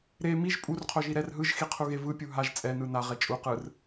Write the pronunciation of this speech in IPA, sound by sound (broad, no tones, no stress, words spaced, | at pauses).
ɾe miʒ pʼurqʰoʒi ɾɛr ɦɯʒxiqʰuɣe vɯpʲu ɦaʒ t͡sʼɛnɯ naʁe t͡ʃʼu qɯr